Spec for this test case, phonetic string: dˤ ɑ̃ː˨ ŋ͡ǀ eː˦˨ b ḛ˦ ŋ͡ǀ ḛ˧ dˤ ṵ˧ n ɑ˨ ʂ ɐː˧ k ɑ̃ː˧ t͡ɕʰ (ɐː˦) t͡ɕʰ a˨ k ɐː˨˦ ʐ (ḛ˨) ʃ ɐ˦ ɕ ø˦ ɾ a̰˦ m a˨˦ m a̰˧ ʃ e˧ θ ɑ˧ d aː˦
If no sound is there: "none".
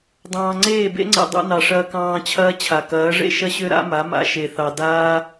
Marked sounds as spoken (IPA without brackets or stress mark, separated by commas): ɐː˦, ḛ˦